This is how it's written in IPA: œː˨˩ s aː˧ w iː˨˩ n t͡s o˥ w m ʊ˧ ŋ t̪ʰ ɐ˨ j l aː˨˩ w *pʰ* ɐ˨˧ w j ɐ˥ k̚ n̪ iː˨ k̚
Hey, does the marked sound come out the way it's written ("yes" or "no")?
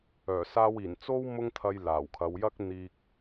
no